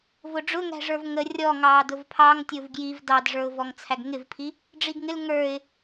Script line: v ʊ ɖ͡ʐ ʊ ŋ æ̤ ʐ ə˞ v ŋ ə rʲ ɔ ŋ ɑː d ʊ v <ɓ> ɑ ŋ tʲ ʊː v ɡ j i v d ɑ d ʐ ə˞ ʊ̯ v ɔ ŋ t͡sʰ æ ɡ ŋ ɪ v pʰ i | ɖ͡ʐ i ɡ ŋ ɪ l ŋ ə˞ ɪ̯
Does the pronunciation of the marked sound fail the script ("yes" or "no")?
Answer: yes